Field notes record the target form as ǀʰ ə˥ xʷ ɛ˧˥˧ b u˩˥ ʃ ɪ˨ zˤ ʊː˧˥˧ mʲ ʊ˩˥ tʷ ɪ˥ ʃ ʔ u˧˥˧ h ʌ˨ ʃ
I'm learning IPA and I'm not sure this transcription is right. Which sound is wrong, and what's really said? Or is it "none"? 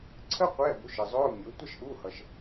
xʷ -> qʷ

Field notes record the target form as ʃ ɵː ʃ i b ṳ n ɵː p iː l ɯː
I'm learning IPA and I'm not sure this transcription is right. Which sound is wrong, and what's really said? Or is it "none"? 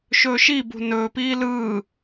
none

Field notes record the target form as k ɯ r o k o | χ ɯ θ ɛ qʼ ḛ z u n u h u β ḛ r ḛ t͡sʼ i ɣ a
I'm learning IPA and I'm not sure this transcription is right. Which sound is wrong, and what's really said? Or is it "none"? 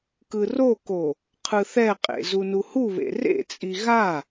χ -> qʰ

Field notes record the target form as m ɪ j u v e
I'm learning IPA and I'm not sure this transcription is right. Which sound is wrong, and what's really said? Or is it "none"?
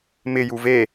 none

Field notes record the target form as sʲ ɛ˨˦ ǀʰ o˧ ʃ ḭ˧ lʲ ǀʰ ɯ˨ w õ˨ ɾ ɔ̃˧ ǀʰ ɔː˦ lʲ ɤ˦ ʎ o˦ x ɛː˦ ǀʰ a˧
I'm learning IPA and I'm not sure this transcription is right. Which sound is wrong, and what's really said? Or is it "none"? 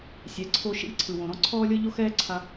none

